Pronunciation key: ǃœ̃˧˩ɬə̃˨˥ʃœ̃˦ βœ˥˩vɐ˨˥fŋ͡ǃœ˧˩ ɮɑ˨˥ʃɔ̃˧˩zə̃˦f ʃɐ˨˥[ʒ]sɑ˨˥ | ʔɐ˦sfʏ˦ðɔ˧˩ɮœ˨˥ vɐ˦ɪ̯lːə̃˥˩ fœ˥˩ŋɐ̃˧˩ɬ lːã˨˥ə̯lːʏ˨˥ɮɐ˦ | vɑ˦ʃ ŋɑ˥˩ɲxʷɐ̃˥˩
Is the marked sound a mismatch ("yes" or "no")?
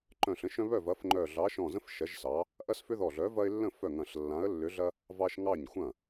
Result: no